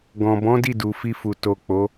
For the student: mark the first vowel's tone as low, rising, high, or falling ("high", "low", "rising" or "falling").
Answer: low